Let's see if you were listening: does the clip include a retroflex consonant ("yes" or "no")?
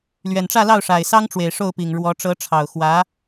yes